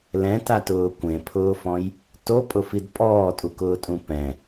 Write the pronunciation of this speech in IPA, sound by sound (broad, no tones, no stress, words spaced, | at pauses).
lɛ̃tatʊː kʷẽpʰʊːfɔ̃j | topʼʊfid pʼɔːtʼukʊːtʼũ pɛ̃